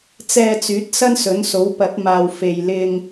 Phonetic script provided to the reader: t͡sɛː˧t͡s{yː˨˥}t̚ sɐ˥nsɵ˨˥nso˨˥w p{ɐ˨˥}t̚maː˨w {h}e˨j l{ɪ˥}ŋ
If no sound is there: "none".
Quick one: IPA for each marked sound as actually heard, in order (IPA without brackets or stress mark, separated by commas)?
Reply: yː˨˥, ɐ˨˥, f, ɪ˨